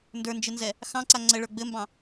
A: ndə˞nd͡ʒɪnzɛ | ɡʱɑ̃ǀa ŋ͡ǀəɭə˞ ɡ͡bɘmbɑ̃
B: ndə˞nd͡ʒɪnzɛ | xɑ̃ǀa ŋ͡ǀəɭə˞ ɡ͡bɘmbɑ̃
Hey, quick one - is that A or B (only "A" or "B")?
B